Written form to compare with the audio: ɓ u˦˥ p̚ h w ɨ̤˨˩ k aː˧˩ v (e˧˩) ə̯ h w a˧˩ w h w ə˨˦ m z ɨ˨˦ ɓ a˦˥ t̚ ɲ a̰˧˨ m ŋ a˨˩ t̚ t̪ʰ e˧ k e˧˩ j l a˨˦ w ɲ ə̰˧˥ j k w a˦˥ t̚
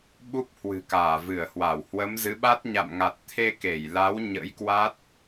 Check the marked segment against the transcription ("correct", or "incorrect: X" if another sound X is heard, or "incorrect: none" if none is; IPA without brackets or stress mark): incorrect: ɨ˧˩